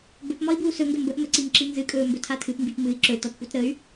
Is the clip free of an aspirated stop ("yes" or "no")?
no